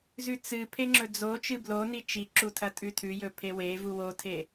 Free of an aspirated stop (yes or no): no